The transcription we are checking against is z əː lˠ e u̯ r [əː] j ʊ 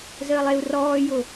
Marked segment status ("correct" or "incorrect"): incorrect